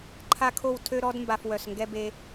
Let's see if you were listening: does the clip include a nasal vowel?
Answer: no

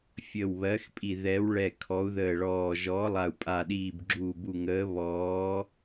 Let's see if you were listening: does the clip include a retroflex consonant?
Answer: yes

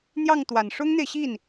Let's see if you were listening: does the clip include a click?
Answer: no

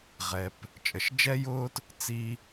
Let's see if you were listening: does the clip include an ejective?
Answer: yes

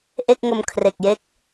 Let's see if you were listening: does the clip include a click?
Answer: no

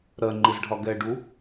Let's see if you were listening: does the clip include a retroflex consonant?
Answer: yes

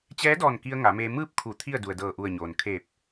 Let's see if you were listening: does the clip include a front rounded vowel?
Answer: no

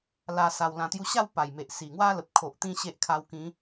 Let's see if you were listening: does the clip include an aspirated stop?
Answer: yes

